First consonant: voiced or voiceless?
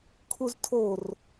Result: voiceless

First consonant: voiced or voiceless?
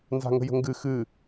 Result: voiced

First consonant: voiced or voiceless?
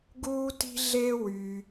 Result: voiced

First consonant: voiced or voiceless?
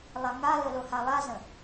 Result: voiced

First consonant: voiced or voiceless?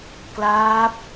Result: voiceless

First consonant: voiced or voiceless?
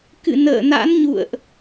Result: voiceless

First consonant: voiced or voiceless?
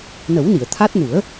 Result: voiced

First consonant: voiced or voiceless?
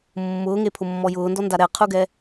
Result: voiced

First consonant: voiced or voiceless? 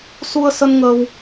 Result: voiceless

